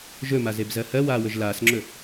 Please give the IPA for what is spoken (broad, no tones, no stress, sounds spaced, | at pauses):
ʒ ɵ m a z e b z ɜ h ɜ w aː w ɵ ʒ l aː s ŋ͡ǁ ɵ